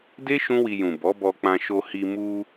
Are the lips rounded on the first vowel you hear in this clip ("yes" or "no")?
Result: no